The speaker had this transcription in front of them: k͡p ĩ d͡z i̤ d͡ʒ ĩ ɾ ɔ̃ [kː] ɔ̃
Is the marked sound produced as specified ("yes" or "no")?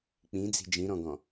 no